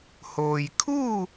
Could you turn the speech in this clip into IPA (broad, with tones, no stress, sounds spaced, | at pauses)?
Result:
h oː˩ j kʰ uː˥˨